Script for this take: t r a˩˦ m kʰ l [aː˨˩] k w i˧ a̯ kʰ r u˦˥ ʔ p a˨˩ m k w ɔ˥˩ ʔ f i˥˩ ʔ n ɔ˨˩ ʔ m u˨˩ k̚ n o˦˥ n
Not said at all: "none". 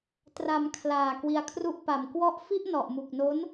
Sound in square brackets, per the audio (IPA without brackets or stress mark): aː˨˩